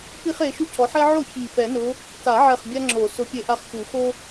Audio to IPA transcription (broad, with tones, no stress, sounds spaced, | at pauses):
p i˥ χ e˨˦ ʃ u˥ cʰ ɔ˨˦ ħ ɛ˥ ʕ o˥˩ ç i˧˩ p ɛ˨˩˦ n ʊ˨˦ | t a˨˩˦ ʕ ɛ˧˩ χ bʲ a˥ ŋ͡ǁ o˨˩˦ s ʊ˨˦ pʲ e˧˩ ʔ a˥˩ χ ʃ u˨˩˦ x o˥